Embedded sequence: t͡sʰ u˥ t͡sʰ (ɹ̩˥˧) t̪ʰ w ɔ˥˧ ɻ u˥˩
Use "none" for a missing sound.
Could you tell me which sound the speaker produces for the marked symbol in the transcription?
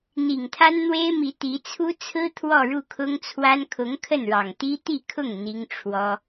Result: ɹ̩˥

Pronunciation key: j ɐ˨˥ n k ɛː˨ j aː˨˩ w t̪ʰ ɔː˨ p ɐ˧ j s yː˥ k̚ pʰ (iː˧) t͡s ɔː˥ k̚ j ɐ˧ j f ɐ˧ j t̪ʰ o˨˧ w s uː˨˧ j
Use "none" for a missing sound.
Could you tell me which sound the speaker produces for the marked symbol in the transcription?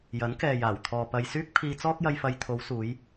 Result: iː˧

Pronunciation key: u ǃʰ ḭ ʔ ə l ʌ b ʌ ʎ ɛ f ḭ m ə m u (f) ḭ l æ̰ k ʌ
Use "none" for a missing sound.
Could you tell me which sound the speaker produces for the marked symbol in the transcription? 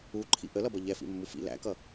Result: f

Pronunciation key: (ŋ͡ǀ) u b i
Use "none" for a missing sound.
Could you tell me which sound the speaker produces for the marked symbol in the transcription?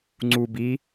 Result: ŋ͡ǀ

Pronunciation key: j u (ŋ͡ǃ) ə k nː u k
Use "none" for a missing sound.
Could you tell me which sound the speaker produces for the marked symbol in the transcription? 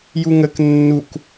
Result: ŋ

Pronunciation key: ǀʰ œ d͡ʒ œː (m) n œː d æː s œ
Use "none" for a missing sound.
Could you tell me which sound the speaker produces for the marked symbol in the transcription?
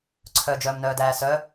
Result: m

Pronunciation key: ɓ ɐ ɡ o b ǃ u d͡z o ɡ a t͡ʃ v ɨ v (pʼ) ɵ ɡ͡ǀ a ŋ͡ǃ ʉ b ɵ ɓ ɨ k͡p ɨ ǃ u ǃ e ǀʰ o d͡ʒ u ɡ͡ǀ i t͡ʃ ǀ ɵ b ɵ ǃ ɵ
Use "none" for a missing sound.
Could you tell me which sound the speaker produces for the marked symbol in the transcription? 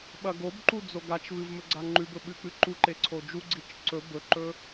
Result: m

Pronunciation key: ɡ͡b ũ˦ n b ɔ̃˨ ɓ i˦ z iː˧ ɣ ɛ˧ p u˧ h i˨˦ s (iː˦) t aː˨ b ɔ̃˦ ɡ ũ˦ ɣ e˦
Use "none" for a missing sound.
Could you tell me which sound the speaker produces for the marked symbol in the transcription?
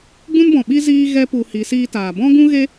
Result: iː˦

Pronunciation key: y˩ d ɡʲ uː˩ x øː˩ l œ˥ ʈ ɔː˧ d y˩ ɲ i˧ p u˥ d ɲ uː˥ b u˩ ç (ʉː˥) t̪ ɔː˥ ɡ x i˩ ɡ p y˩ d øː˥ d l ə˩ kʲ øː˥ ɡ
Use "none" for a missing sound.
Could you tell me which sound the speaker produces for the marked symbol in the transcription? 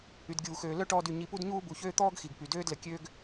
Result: øː˥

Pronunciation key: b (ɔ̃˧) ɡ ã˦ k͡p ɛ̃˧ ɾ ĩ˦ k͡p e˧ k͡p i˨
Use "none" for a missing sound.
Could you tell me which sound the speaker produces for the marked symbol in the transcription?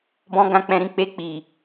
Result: ɔ̃˧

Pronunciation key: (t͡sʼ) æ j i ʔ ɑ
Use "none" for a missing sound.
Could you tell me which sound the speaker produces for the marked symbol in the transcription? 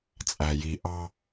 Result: t͡sʼ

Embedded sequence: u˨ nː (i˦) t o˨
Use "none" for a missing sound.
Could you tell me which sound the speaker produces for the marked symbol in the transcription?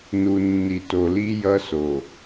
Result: i˨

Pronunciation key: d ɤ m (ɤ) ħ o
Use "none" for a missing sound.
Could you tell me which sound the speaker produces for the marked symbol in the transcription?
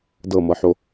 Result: ɤ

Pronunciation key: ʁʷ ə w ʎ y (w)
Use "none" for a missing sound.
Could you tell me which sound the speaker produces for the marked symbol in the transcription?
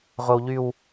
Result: w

